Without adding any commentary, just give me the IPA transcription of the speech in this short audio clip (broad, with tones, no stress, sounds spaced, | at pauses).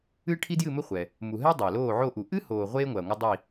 ɨ˥ ʈʰ i˥ d j ɨ˥˧ m ɘ˥ χʷ ɛ˨ | m u˨ ɦ ɛ˥ dˤ ɐː˨ l oː˥˧ ʕ o˥˧ ʔ u˨ ʔ ɨ˥ h oː˨ ʁʷ eː˥ ŋʷ ɐː˨ ŋʷ ɐ˥ dˤ i˥˧